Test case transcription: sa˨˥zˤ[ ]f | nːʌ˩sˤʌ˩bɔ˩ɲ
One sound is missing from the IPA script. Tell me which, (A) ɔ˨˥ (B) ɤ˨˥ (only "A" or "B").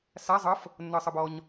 B